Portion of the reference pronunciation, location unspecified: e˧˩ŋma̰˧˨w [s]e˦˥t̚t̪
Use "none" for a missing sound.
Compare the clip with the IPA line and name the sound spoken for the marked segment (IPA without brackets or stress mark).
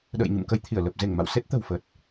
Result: s